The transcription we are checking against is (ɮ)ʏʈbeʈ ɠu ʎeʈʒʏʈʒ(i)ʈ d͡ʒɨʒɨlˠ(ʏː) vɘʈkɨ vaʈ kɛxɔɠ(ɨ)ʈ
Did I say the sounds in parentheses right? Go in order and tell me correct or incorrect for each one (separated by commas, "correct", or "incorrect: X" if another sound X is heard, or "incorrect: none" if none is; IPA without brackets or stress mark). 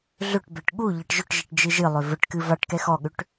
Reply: correct, correct, incorrect: ʏ, incorrect: ʏ